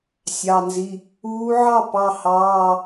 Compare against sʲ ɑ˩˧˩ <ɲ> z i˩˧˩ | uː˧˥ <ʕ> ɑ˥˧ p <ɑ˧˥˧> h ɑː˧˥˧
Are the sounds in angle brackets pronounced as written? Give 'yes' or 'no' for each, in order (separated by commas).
no, yes, yes